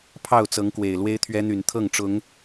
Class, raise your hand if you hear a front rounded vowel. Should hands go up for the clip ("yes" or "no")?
yes